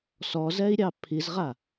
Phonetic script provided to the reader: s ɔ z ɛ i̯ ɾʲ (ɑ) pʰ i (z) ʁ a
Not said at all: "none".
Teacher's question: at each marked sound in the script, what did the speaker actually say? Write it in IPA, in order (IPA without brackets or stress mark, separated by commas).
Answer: ɑ, z